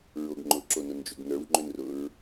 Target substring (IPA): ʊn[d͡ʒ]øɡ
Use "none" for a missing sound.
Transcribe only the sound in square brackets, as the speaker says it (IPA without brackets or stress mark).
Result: d͡ʒ